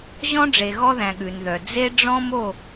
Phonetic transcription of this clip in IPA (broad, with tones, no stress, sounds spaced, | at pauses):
ʑ ɔ̃˦ ɖ͡ʐ e˨ ɣ ɔ˦ ð æ̃˨ ɠ ʉ˨ n ð œ˨ d͡z e˦ ɖ͡ʐ ɔ̃˦ m o˦˨